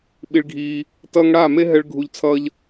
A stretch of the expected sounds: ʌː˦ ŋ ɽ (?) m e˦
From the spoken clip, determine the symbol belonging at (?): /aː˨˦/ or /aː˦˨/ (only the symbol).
aː˦˨